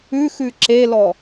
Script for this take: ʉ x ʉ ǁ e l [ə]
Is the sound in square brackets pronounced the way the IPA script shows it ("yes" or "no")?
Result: no